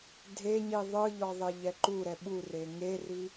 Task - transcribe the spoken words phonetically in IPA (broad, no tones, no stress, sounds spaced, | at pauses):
dʱ e ɲ i ðˤ ɯ ʎ ɔ ðˤ e ʎ ɛ ǃ u ɾ ɛ ɓ u r e ŋ e r i